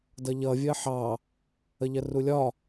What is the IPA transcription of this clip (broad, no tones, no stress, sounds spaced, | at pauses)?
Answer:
d ʌ ʎ ʌ vʲ ɜ ħ ɑ | ə ʎ ɜ r u lʲ ɒ